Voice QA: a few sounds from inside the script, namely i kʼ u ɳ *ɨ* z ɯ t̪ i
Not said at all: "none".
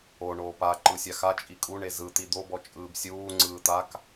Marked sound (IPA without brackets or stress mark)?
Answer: e